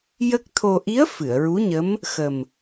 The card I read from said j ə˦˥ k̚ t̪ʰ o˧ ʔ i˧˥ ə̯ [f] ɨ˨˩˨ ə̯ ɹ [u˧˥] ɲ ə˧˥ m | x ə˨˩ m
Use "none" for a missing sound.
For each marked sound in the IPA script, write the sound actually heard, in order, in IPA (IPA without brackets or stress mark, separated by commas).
f, u˧˥